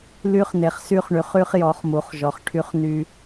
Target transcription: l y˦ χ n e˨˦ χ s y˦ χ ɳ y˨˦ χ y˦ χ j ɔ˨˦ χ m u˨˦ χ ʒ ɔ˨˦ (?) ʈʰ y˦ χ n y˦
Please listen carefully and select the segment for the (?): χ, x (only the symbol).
χ